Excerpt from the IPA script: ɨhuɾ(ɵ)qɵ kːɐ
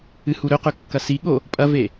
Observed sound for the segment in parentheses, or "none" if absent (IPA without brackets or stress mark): ɵ